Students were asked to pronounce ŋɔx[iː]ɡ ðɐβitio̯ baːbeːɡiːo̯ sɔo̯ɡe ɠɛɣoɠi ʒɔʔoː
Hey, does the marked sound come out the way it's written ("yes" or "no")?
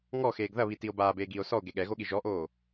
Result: no